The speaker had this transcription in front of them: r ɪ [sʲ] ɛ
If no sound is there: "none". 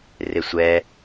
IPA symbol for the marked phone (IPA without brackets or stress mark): sʷ